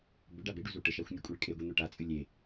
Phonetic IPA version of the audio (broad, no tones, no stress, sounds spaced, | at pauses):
b ʏ ɖ a b e ɖ u z u ʈ ə ʃ a xʷ nʲ u kʷʼ ɨ ɭ kʼ e ɡʷ e n̪ o ʈ a t͡sʼ ɨ lʲ e